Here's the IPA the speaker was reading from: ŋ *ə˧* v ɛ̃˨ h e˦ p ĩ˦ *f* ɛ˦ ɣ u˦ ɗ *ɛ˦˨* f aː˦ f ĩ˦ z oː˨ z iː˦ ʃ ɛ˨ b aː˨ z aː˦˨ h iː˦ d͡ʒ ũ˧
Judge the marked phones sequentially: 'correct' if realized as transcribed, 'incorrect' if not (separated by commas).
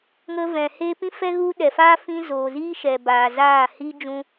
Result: correct, correct, incorrect